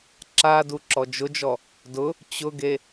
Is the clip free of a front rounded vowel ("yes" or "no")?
yes